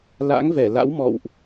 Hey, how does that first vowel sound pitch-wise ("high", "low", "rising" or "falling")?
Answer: rising